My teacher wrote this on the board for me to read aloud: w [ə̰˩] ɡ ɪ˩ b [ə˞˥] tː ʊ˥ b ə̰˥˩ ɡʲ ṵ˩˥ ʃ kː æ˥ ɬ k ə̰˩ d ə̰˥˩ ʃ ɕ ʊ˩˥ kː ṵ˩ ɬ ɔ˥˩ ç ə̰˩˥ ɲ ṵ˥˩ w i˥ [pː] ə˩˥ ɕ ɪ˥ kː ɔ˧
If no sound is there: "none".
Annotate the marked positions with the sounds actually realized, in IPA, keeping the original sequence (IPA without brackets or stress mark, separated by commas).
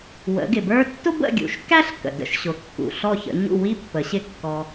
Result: ə̰˩˥, ə˞˥, pː